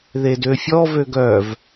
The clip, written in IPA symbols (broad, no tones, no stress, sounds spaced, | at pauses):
ð e d ø fʲ ɔ v ø ɡ œ v